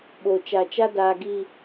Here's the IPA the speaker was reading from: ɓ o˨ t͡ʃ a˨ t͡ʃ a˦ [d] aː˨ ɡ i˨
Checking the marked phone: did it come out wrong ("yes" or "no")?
no